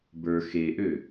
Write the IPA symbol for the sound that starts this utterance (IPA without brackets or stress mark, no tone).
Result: b